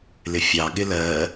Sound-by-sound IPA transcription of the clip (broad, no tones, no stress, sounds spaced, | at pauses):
l ɪ fʲ ɑ ɠ ɪ l ɜ